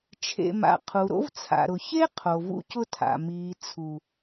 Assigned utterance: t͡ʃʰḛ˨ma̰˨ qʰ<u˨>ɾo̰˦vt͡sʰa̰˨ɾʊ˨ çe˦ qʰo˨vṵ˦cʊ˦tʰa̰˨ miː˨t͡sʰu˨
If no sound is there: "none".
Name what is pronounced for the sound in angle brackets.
u˨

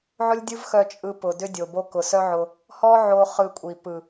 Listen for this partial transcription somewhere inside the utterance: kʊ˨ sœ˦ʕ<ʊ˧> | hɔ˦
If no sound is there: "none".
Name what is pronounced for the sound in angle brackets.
ʊ˧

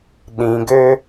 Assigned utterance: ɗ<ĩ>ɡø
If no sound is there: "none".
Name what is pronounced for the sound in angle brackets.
ĩ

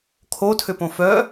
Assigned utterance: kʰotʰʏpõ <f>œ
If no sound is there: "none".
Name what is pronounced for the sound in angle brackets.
f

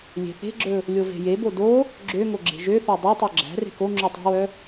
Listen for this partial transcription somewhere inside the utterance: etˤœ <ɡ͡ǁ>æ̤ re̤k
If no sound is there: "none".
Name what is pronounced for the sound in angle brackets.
ɡ͡ǁ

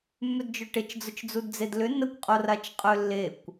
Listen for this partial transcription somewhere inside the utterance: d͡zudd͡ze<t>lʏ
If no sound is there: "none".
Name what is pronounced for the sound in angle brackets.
d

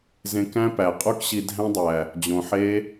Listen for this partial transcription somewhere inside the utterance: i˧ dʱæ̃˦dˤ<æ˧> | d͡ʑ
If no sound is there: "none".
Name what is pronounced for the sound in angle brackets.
æ˨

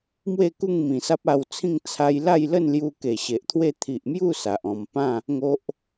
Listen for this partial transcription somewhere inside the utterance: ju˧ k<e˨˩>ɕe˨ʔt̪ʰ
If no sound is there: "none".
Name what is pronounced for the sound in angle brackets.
e˨˩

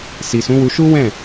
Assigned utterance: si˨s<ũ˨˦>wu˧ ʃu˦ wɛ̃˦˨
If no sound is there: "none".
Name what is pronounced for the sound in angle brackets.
ũ˨˦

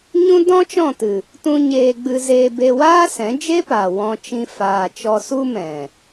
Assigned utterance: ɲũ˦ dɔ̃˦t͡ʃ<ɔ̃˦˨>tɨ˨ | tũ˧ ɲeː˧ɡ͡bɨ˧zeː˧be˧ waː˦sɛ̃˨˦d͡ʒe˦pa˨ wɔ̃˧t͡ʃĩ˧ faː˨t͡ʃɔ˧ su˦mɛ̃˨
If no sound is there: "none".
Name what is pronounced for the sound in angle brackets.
ɔ̃˦˨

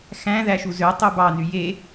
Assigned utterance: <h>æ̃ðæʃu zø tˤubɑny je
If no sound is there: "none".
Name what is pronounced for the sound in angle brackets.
x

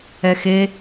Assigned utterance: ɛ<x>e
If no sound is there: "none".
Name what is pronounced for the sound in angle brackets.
x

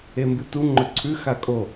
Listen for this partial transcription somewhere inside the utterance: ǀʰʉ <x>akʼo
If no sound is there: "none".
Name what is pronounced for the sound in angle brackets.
x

